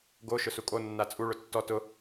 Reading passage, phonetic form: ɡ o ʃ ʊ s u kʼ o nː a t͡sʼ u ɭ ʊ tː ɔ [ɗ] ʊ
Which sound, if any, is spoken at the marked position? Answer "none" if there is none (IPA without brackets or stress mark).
t